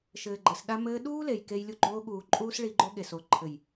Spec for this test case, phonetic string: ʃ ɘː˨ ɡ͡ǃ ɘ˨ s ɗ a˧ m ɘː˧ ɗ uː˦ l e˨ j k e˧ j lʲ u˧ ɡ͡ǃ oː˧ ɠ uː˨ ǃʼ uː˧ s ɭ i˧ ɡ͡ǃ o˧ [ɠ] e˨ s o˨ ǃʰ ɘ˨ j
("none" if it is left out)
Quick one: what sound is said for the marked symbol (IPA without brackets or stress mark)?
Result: ɠ